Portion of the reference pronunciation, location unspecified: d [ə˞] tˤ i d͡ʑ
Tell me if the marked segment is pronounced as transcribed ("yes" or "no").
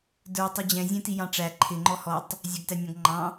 yes